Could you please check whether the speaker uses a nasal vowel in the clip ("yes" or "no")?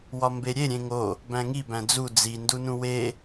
yes